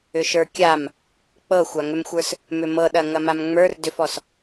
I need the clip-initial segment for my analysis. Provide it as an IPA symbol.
ʏ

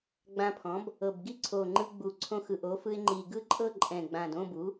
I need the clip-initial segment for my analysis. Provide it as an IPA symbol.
ɡ͡b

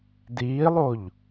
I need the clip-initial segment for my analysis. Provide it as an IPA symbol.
d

